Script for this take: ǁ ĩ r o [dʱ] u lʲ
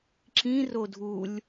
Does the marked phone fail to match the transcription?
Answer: no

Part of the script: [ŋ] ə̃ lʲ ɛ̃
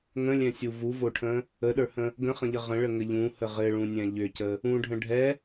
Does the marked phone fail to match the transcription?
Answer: no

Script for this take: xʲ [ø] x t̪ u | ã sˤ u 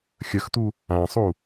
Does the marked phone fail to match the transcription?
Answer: yes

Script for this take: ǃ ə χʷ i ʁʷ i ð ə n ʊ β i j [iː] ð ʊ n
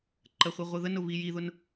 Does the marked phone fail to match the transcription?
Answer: yes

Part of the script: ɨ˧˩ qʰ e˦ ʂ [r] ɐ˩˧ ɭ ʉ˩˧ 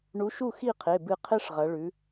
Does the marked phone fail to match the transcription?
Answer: yes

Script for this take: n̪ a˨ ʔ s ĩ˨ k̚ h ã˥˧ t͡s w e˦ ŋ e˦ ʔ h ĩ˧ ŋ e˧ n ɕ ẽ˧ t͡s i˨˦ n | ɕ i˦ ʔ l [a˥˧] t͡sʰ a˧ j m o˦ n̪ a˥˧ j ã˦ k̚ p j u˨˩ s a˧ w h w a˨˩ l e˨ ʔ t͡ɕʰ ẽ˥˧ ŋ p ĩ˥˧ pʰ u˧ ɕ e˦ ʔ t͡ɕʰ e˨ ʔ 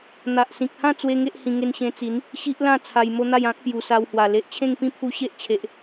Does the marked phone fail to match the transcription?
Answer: yes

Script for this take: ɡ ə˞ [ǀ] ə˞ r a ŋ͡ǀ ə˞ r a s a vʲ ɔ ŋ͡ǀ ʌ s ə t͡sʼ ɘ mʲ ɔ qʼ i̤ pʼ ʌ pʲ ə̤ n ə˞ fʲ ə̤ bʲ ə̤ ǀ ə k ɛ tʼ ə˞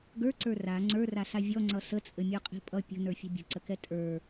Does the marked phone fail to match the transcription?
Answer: no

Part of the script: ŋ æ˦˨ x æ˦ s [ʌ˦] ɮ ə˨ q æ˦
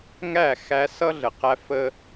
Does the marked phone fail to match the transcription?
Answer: no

